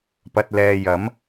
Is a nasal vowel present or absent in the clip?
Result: absent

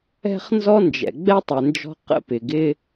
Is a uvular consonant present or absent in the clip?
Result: present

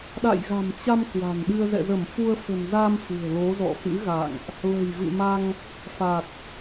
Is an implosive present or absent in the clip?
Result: present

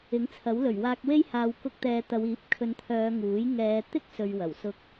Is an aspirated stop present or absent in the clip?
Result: present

